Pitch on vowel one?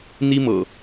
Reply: high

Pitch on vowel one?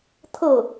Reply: falling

